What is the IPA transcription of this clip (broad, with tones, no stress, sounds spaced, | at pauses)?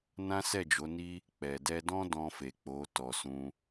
n ã˦ s ɛ˦˨ d͡ʒ o˨˦ n i˦ | k͡p ɛ˨ d ɛ˧ d ɔ̃˦ d ɔ̃˧ f e˨ k͡p o˨˦ t ɔ˧ s ũ˦